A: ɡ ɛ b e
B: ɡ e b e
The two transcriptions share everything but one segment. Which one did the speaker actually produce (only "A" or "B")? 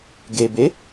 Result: B